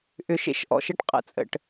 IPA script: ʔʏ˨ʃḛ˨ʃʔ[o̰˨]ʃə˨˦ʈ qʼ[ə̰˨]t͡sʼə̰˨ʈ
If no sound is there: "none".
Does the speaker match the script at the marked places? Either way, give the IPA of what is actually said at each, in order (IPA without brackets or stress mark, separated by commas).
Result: ɔ̰˨, ə̰˨